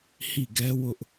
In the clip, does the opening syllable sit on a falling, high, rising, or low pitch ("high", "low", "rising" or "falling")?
falling